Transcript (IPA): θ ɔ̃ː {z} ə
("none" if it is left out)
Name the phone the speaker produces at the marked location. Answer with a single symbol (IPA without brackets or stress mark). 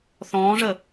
ʐ